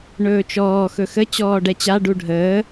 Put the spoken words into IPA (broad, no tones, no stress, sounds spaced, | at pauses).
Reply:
ɳ ɵː t͡ʃ ɔː x ɵ x ə t͡ɕ ɔː ɖ ɛ t͡ɕ a ɖ u ɖʱ əː